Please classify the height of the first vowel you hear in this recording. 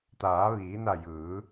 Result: low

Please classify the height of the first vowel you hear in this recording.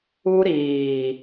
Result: high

